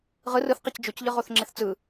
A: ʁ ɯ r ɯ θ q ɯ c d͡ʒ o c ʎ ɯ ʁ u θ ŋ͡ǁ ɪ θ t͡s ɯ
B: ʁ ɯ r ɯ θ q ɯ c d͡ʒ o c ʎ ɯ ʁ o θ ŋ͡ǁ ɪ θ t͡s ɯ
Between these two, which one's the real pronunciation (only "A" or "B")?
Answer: B